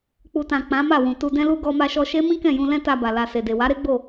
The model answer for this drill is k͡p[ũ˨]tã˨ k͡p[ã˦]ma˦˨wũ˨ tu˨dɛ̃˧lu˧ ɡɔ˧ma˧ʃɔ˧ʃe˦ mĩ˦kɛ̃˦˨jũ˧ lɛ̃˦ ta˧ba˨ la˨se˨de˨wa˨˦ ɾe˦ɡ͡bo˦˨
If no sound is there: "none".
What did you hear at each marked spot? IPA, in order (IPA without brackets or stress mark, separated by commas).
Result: u˨, ã˨˦